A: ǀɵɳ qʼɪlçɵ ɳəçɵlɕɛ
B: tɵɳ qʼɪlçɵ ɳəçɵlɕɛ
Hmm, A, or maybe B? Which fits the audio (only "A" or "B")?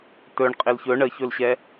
B